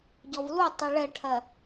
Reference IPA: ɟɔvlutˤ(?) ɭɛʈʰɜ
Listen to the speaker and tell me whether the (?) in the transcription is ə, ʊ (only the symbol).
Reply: ʊ